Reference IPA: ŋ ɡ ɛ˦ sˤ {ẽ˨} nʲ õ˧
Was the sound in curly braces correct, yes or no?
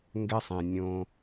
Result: yes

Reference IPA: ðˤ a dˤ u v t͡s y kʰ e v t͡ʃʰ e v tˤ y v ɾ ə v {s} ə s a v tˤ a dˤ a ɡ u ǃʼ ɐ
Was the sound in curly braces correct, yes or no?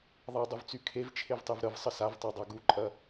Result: no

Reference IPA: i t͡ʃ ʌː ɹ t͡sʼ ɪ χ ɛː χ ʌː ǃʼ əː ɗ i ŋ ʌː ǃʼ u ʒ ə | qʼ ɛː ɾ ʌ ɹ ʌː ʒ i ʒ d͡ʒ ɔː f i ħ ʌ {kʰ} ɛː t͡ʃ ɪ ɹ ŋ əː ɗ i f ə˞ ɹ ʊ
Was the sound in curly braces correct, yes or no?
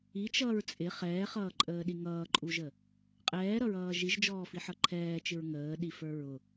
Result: no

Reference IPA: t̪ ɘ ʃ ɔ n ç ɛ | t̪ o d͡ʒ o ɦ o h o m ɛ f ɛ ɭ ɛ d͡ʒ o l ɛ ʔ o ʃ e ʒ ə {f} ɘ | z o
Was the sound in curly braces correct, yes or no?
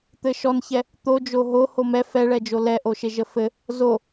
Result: yes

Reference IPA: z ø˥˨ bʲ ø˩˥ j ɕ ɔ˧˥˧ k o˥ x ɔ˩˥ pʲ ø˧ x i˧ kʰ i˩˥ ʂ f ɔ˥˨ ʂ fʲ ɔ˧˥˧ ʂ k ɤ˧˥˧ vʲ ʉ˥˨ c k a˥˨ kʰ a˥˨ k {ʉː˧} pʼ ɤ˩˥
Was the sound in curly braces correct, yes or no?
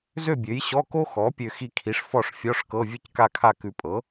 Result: no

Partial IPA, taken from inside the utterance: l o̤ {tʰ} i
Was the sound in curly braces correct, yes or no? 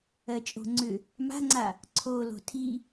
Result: yes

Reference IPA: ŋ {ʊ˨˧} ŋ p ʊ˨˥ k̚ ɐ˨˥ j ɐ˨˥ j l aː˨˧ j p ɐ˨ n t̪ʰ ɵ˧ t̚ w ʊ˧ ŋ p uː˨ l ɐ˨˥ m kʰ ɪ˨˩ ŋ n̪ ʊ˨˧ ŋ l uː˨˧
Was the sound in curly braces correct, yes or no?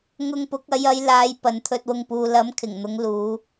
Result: no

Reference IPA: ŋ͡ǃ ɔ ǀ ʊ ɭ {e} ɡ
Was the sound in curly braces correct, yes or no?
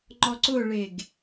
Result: yes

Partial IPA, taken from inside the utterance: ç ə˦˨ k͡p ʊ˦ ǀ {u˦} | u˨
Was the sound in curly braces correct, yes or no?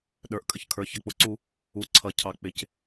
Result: yes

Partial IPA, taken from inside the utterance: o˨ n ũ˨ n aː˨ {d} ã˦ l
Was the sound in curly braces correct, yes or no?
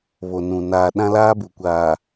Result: no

